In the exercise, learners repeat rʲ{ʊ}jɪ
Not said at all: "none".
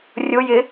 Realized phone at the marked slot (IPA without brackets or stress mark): ʊ